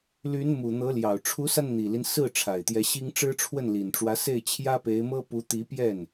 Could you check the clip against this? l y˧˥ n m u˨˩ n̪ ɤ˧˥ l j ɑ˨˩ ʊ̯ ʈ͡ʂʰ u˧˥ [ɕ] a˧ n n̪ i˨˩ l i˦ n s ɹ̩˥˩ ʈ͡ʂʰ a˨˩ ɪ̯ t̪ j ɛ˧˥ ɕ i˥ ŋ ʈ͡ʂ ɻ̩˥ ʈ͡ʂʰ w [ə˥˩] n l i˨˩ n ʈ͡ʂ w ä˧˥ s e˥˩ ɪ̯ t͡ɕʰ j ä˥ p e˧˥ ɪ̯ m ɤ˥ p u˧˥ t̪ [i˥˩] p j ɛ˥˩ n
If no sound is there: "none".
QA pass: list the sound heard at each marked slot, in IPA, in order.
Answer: s, ə˥˩, i˧˥

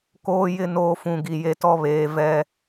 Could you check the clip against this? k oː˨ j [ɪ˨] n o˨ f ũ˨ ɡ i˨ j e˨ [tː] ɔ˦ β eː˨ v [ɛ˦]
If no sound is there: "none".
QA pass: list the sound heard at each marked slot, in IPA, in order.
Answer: ɪ˨, t, ɛ˦

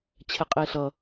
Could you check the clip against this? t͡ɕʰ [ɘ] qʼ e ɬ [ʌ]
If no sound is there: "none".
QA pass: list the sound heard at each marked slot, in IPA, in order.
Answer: ɛ, ʌ

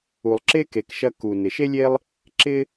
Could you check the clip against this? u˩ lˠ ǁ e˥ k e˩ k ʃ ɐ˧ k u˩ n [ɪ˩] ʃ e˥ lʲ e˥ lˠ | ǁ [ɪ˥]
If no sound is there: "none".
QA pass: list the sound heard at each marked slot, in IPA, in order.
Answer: ɪ˩, ɪ˥

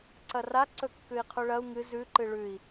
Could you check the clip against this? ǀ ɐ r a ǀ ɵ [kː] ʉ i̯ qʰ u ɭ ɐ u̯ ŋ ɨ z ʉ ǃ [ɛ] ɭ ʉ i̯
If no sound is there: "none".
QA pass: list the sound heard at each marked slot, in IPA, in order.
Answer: kː, ɨ

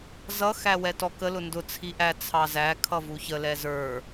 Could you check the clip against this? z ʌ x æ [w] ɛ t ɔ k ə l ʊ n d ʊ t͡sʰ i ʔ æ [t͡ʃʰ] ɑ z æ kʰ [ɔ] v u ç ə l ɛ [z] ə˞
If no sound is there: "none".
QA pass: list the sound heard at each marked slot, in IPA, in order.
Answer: w, t͡sʰ, ʌ, z

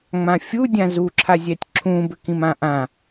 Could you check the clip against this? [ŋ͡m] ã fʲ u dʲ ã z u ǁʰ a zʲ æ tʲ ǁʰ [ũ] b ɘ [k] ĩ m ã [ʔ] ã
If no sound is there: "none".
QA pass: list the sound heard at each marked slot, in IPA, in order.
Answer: ŋ͡m, ũ, k, ʔ

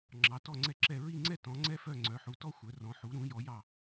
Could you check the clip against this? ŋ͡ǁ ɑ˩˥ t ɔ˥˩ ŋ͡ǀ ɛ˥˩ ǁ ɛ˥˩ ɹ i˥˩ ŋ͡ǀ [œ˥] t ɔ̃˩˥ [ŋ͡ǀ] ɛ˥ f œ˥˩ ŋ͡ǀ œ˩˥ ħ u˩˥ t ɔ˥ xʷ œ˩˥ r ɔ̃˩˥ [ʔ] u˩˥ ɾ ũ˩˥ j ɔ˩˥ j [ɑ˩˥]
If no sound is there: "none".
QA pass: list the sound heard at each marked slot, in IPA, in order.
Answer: ɛ˥, ŋ͡ǀ, ħ, ɑ˥˩

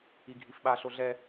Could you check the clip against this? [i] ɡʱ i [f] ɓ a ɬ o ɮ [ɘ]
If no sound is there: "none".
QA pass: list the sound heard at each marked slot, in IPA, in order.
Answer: i, f, ɛ

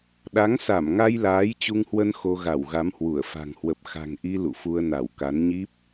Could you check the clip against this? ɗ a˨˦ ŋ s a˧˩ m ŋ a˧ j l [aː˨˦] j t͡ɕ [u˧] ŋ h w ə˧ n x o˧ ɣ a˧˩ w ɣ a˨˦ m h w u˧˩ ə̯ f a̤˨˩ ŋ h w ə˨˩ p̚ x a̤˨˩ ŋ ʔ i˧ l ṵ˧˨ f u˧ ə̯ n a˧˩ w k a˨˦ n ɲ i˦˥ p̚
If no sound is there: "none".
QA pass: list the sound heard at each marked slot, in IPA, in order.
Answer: aː˨˦, u˧

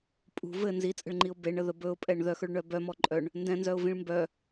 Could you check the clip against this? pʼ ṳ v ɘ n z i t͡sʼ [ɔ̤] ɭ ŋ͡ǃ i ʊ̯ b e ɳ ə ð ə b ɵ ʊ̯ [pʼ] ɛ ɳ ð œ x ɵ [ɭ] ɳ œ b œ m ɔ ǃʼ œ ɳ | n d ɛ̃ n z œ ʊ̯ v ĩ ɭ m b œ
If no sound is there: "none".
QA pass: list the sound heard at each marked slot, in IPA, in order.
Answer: ə̤, pʼ, ɭ

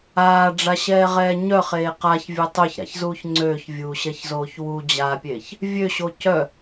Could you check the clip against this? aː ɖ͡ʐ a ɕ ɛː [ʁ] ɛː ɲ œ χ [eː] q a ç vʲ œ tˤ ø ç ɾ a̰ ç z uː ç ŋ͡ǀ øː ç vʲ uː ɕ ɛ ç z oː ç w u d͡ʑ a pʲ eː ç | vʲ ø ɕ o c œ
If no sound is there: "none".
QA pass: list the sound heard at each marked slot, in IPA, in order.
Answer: ʁ, eː

